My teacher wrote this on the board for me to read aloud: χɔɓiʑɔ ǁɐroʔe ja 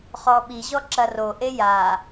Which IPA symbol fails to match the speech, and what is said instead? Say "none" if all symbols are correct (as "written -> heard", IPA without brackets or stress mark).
none